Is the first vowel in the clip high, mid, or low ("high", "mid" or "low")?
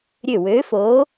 mid